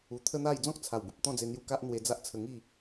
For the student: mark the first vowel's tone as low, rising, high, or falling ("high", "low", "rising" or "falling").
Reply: low